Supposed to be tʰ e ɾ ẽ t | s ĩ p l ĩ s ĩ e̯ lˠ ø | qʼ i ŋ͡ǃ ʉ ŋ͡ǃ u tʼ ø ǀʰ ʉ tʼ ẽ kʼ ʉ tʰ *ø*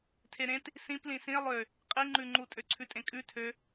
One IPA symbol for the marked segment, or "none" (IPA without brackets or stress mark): ø